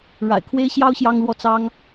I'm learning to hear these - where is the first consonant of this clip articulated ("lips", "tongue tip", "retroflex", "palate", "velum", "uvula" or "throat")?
retroflex